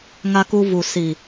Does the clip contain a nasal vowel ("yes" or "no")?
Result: no